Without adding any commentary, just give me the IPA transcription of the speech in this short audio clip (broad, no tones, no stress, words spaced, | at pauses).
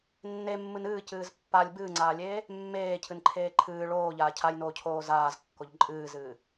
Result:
nːemːɨn ɨːcɨːz pːalʲ bɨːŋ͡ǀaːlʲeː | mːeːcʰɨnǃʰeː ǃʰɨː ɭoːʎaː cʰajnoːcʰoː zaːzkːoʎ ǃʼɨːzɨː